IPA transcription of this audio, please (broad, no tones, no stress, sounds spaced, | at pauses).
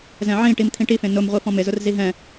z ɛ̃ ʕ ĩ ʈ i m t̪ʰ ĩ ʈ i f ẽ n ʊ m ʁʷ i f ɔ̃ m ɪ z ʊ r z i ɦ ɛ̃